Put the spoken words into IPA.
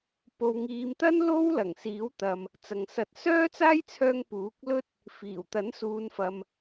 p o˨ w ŋ iː˨˧ m t̪ ɐ˥ n l o˥ w l ɐ˨˩ ŋ s iː˨˥ w t̪ ɐ˨ m | t͡s ɐ˨ ŋ s ɐ˧ t̚ s œː˥ t͡s aː˥ j t͡sʰ œː˧ ŋ p uː˨˥ k̚ l ɵ˥ t̚ | f iː˨˩ w t̪ ɐ˨˥ n s uː˨˧ n f ɐ˨ m

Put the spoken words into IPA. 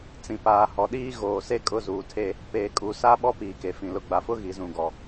t͡s ĩ˨ p aː˨ h ɔ˨ ɗ iː˦ ɣ oː˨ s e˦ kʼ ʊ˦˨ z uː˨ tʰ e˦ | p eː˨ kʼ u˨˦ s a˦ ɓ ɔ˦ p iː˨ k e˨ f ĩ˨ l ʊ˨ ɡ͡b a˨ f ʊ˦ ɣ i˨ z ũ˨ ɡ ɔ˨

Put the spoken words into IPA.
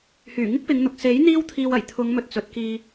h yː˨˩ ŋ ɪ˥ k̚ p ɪ˨˧ ŋ n̪ ʊ˨ k̚ s e˨˥ j n̪ iː˥ w t̪ʰ iː˧ w ɐ˨˩ j t̪ʰ ʊ˨˧ ŋ m ɵ˨ t̚ t͡s ɵ˨ t̚ k iː˧

